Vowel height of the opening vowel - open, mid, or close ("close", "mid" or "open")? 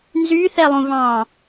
close